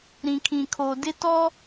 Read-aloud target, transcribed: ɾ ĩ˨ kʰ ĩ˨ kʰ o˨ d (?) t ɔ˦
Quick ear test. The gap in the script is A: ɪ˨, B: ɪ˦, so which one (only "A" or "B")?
B